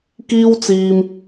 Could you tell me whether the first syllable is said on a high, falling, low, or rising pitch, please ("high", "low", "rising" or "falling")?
high